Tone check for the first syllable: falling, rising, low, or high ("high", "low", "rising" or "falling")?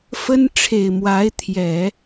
high